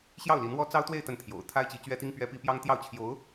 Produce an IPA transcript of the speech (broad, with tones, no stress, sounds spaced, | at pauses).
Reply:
ɕ j ɑ˥˩ ʊ̯ l i˧˥ n w ɔ˥ t͡s ɑ˥ ʊ̯ t̪ w e˥˧ ɪ̯ t̪ ə˥˩ n t̪ʰ j o̰˨˩ ʊ̯ t̪ʰ a˥ ɪ̯ t͡ɕ i˧˥ t͡ɕ ɥ ɛ˥ t̪ i˥ ŋ p ɥ ɛ˥ p i˥ p j ɑ˥ ŋ t̪ j ɑ˥˩ ʊ̯ t͡ɕʰ j o˧˥ ʊ̯